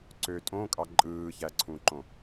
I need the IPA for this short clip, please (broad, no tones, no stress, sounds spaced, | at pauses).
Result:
ǀ ø tʼ õ kʼ ɑ ǃʼ ɯː ç æ ǀʰ ũ ǃ õ